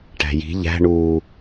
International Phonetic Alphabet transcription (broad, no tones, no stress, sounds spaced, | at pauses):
ʈ æ̤ j i̤ ʎ æ̤ ɳ uː